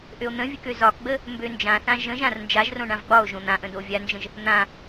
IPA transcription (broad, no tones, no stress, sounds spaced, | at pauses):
ʔ ø o̯ n̪ ə̃ vʲ ɘ k ø z ɒ k ɡ͡b ə | m b ø n d͡ʒ ã θ ã ʒ ə̃ ʒ ã r n d͡ʒ a ʒ r õ ɳ ã v ɡ͡b ɒ o̯ ʒ õ n̪ ã ʔ ə̃ d o vʲ a n d͡ʒ ə̃ ʒ | n̪ ã